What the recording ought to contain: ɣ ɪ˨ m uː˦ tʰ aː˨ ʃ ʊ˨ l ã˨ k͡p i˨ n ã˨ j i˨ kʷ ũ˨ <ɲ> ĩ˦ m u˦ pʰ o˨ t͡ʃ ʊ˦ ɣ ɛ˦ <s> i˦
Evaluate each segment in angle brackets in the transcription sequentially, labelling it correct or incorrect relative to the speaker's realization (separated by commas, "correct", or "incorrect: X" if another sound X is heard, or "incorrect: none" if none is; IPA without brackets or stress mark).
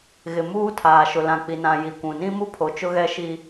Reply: incorrect: n, incorrect: ʃ